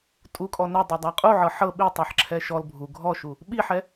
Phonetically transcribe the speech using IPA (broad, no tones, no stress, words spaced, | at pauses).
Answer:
tʼukʼɔ nɛdˤɤdˤa qʼuʕɤ ħɤ ɓitˤɛħǁʰɛ ʃɔl bʱu ɡʱɔʃu | ɓiħɛ